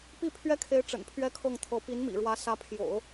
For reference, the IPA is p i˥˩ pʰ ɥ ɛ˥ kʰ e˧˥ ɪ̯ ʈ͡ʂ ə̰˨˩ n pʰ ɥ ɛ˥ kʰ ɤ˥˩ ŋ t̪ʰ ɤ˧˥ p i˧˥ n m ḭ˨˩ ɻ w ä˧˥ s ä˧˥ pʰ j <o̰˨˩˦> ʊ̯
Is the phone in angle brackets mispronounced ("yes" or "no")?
no